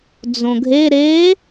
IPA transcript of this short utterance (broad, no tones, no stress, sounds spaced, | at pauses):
d͡z õ ɡʱ e ɾ e